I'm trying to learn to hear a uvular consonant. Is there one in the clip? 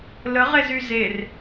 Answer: yes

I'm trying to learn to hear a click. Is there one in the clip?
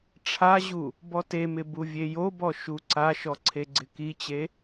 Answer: yes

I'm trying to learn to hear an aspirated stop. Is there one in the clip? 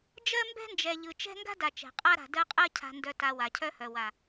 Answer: yes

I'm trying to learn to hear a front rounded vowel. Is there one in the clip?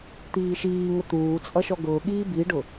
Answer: no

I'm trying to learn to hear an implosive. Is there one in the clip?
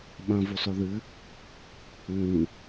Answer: yes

